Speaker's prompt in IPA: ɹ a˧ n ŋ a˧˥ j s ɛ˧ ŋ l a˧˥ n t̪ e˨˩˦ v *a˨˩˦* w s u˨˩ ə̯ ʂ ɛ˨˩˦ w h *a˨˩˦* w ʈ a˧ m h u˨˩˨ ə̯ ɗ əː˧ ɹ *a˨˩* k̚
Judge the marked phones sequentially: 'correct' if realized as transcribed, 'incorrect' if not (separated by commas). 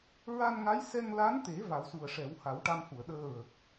correct, correct, incorrect